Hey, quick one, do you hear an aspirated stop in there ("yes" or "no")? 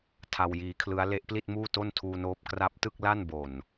yes